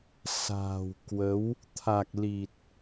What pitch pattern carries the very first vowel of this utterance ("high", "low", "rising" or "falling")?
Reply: low